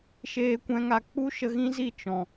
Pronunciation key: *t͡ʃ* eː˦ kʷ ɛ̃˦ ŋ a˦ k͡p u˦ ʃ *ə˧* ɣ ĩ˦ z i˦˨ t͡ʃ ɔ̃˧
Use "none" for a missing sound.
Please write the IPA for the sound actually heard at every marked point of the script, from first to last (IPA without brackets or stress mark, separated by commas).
ʃ, ə˧